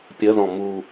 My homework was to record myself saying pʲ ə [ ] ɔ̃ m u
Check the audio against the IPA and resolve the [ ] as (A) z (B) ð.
B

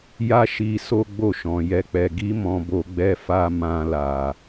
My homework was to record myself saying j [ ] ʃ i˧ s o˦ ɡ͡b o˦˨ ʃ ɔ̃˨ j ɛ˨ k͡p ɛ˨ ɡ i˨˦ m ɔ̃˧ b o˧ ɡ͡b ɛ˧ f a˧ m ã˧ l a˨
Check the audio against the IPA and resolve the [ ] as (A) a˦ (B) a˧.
A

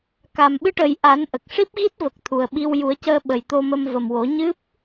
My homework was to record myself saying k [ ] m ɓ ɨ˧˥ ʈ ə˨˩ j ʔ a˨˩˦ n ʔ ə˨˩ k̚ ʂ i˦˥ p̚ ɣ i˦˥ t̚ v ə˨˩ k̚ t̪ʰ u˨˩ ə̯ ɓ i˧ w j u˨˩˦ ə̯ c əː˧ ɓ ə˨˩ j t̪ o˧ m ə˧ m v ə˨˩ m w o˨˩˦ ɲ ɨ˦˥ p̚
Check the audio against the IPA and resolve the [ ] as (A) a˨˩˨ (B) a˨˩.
B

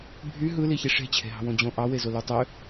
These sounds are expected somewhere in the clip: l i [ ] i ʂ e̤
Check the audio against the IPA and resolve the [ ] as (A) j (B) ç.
B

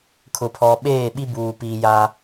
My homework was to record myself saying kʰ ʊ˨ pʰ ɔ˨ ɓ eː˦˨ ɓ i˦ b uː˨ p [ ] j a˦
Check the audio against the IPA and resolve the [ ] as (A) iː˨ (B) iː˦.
A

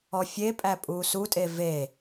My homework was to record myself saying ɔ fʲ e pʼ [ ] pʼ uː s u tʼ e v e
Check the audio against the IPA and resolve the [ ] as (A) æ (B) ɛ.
A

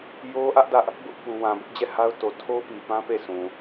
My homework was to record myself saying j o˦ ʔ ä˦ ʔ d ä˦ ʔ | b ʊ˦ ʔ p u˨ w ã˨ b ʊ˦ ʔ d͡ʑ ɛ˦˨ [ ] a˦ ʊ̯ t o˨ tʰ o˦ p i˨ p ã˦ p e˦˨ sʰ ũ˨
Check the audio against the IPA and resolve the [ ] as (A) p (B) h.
B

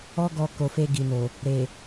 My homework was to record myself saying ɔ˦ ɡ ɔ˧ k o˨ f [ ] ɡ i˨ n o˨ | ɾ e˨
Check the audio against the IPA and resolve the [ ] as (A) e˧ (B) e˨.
A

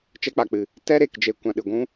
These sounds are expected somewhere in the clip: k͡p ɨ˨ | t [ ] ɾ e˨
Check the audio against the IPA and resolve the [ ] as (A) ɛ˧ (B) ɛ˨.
A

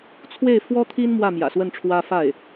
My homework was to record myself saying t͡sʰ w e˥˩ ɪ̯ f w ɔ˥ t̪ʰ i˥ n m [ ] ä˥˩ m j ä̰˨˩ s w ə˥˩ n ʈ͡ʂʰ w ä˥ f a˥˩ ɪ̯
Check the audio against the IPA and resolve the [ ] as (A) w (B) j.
A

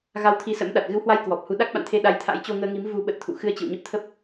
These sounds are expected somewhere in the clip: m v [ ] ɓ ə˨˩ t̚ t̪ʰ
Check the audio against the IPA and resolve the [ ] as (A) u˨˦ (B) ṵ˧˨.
A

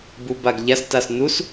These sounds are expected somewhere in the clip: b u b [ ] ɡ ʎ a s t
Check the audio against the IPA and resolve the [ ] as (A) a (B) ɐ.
A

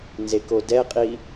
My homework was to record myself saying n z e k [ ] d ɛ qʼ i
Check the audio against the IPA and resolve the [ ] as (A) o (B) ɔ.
A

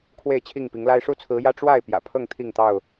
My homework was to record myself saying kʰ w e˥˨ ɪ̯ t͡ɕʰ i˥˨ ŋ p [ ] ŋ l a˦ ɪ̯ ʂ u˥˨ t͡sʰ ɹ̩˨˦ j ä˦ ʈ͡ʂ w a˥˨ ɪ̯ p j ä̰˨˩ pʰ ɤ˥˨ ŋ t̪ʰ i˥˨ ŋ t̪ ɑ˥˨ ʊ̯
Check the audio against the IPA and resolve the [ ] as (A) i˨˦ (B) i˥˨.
A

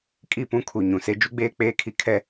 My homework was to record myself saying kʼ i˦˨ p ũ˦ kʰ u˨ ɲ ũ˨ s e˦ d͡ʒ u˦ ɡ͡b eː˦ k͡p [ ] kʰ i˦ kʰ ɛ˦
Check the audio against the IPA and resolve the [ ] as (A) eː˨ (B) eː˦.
B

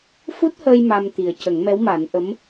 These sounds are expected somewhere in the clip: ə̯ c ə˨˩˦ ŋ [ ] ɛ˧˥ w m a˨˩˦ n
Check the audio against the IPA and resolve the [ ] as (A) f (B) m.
B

